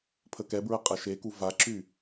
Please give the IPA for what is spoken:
pʰ ə k ɛ b ɹ ə qʼ ɐ ʃ e k u v a ǁ y

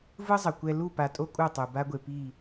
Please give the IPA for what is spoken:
v ɯ˦ zˤ ʌ˨ kʷ ɛ˦ l u˦˨ p a˨ tʼ o˦ kʼ u˦˨ tˤ u˨ b a˦ ɡʷ e˨ p i˦˨

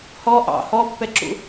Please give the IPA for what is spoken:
h ɔ ʔ ɑ̰ h ɔ pː ɛ ǁ ṵ

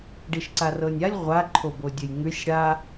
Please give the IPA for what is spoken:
ɖ i ʃ ǀ a r ɤ nʲ a lʲ ʁʷ a ǃʰ o b o dʲ ɘ j ŋ ʉ sʲ ɽ a

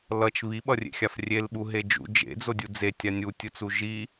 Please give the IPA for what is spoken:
l ʌ t͡ʃ β i ɓ ʌ rʲ ḛ xʲ a f rʲ e l ɓ u ɦ e d͡ʒ ṵ d͡ʒ ḛ d͡z o dʲ u d͡z e tʲ a nʲ u tʲ ɯ t͡s u ʒ i

